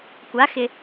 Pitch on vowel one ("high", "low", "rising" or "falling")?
rising